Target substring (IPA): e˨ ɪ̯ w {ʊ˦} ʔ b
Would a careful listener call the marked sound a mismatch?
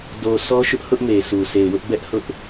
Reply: no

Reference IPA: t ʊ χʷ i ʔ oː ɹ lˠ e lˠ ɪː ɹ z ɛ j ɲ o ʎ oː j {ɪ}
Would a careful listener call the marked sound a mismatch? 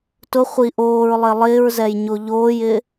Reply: no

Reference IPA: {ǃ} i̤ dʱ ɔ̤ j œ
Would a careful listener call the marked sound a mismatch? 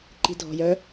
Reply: no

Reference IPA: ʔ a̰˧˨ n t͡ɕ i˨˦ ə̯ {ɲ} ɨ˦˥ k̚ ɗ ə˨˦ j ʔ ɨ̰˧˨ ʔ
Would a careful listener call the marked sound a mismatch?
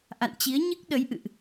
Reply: no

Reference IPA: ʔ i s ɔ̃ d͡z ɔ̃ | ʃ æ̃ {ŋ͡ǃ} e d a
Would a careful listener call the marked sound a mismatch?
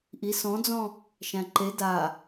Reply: yes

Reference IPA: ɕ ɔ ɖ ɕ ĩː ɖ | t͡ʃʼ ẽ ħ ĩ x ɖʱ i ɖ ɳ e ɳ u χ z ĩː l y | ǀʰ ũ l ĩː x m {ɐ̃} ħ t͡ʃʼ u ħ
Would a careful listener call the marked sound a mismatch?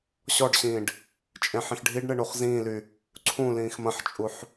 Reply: no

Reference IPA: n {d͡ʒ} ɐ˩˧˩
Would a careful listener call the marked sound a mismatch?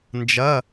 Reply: no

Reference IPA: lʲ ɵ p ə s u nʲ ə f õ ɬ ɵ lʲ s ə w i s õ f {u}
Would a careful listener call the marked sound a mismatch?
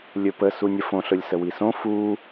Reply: no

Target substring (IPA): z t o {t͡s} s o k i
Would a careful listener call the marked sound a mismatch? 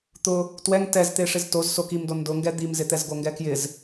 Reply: yes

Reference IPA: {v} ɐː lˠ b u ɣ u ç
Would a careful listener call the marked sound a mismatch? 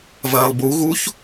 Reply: no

